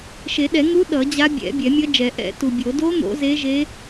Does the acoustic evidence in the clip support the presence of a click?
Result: no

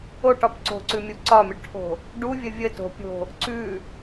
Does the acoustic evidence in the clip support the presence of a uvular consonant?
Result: no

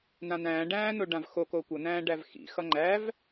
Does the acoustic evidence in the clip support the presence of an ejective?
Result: no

